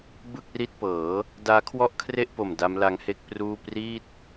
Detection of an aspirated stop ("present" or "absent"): present